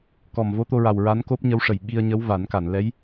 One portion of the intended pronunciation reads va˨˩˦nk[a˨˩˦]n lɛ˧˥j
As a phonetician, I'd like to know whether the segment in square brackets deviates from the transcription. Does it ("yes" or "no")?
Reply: yes